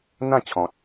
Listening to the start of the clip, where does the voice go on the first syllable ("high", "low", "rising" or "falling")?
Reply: falling